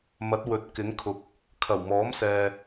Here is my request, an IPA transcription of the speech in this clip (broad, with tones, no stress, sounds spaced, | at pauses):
m ɐ˨˥ t̚ w ɵ˨ t̚ k ɪ˨˥ ŋ kʰ ʊ˨ k̚ | kʰ ɐ˨˩ w m ɔː˨˥ m s ɛː˨